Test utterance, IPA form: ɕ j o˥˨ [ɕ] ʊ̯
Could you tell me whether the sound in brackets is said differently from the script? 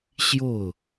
yes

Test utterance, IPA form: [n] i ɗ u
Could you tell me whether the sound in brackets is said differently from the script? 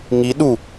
yes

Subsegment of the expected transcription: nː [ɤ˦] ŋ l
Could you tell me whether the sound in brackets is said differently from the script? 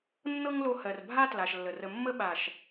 no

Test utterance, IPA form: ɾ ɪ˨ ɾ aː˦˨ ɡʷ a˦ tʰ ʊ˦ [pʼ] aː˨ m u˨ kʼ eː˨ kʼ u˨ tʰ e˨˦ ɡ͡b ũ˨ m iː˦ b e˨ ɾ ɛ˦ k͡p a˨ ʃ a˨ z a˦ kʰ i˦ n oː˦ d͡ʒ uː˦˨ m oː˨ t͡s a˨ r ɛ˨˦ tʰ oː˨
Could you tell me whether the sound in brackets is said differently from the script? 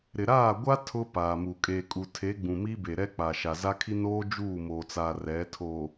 yes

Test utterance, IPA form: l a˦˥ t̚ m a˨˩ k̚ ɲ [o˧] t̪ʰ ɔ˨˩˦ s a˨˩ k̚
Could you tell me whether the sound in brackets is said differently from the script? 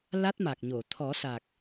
yes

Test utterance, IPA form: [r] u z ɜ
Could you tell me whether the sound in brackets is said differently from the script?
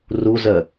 no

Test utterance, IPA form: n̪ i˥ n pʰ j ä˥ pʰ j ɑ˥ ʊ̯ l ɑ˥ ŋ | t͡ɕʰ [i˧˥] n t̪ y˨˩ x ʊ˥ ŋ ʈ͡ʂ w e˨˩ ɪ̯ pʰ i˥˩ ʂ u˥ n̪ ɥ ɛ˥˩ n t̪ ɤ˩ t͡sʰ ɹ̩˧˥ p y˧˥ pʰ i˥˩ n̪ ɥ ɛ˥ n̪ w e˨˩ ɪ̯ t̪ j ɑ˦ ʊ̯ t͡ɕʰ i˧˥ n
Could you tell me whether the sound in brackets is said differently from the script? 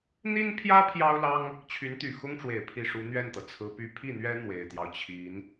yes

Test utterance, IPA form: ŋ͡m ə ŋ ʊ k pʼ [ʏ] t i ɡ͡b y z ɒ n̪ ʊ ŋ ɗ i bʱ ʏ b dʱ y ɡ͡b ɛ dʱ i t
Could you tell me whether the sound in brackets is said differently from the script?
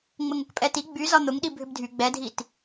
yes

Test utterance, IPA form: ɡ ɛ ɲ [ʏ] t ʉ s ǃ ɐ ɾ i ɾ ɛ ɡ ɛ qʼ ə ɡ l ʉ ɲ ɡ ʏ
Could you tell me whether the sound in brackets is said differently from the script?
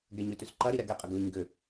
no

